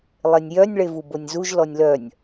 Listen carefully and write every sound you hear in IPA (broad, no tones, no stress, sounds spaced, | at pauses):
lˠ e nʲ j œ nʲ ɭ e v u b o nʲ z u ʒ l ɔ nʲ l œ nʲ